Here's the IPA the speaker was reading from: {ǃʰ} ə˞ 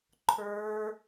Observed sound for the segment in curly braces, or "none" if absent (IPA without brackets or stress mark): ǃʰ